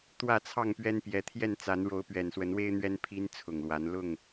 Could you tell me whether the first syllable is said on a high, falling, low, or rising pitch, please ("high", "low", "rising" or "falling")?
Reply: falling